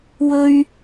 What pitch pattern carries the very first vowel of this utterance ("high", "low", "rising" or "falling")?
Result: high